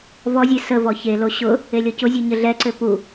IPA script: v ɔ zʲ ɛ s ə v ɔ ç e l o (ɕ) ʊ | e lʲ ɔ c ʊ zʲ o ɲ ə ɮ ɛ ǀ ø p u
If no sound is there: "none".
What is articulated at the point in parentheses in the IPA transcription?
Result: ɕ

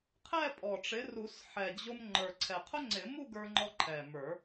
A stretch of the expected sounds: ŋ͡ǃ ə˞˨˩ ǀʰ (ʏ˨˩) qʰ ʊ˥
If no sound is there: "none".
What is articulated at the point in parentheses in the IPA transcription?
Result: ɛ˨˩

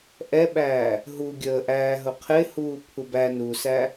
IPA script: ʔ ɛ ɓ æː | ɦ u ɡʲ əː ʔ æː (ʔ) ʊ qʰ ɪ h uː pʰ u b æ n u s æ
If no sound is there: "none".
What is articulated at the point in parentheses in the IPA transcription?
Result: ɦ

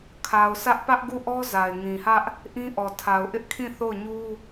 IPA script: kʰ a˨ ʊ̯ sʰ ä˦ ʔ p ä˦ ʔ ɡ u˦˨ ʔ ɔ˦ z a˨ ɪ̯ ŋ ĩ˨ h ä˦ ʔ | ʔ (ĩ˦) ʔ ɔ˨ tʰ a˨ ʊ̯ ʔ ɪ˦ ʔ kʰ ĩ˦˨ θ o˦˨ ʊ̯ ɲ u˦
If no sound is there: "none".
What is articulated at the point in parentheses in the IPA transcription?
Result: ĩ˦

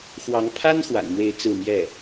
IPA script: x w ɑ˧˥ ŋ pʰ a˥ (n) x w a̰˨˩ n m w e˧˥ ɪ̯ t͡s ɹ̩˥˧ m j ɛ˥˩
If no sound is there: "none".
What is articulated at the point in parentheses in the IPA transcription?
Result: n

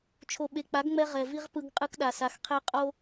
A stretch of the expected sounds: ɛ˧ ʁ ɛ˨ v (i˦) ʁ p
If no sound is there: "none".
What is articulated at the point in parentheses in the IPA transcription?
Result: i˦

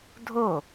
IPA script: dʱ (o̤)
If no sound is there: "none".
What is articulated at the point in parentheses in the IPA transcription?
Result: o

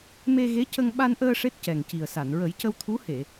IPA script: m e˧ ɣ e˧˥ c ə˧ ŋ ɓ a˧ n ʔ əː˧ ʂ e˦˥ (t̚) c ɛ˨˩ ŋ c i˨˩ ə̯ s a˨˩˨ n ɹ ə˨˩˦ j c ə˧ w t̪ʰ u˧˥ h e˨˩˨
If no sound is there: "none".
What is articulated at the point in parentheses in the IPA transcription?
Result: t̚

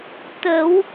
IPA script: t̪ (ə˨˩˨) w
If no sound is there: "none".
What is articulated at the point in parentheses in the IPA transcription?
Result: ə˨˩˦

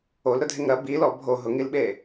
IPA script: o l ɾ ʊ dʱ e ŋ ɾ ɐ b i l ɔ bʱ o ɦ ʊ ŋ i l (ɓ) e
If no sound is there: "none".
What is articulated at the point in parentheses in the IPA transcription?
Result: ɓ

